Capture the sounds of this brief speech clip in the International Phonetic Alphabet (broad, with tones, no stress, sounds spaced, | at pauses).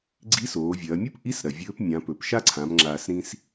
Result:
ɡ͡ǀ i˧˥ s oː˩˧ vʲ ɐː˩˧ mʲ u˥ p ʔ i˧˥ s ɾ ɐ˩ vʲ ɵː˧˥ p mʲ ã˩˧ p ɵ˩ p ʃ a˥ ǀʰ ã˩˧ m ŋ͡ǁ aː˩ s ɾ ĩ˧ s